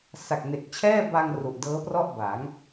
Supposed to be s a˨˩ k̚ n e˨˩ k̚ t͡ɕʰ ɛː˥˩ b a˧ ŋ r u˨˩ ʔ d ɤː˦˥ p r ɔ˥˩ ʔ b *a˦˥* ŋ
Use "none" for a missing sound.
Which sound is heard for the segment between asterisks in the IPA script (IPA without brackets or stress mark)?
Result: a˩˦